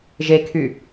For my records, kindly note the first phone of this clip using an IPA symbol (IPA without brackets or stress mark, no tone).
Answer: ʒ